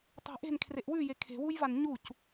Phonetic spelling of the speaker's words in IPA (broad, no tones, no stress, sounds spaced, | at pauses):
tˤ e̤ ʔ e̤ n kʰ r e ʔ w ʉ j e kʰ e̤ w u j v a n ɲ u c